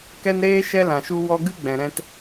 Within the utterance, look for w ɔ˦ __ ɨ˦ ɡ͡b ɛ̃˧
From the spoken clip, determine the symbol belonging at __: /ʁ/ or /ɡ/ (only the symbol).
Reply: ɡ